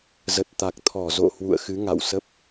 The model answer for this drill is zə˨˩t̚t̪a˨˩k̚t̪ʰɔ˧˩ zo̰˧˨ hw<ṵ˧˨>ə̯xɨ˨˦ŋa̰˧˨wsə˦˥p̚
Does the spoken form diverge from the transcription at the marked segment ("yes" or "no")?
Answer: no